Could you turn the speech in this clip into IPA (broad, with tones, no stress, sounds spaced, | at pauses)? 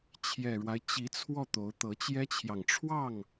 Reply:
t͡ɕʰ j ɛ˨˩ ɻ w a˦ ɪ̯ t͡ɕ i˧˥ t͡sʰ w ɔ˥˩ t̪ o˧˥ ʊ̯ t̪ ɤ˧˥ t͡ɕ j ɛ˥ t͡ɕʰ j ɑ˨ ŋ ʈ͡ʂʰ w ɑ˥˩ ŋ